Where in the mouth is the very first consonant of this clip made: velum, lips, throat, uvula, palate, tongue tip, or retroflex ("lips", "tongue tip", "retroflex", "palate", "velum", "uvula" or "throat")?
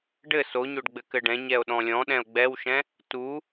retroflex